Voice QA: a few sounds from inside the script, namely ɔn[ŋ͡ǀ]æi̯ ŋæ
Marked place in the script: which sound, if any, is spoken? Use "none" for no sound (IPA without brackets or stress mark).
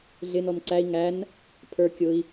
ǀ